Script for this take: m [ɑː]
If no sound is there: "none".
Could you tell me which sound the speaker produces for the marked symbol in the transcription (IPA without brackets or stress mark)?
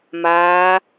aː